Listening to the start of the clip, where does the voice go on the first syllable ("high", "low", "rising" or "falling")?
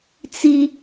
high